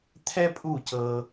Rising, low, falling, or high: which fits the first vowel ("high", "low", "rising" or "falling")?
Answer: high